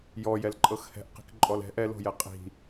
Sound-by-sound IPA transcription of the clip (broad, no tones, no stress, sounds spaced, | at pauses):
j ɔ j ɛ l ǃʼ ɤ x h ɛ̤ ʔ q i̤ k ǃʼ ɔ l ɛ̤ ʔ ɛ l o̤ j ɛ qʼ i̤